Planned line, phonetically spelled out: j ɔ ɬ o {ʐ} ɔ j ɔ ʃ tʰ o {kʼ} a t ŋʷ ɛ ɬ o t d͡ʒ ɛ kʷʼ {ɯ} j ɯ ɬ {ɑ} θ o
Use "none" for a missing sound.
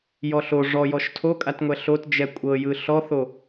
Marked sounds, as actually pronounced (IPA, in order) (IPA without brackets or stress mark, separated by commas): ʐ, kʼ, ɤ, ɔ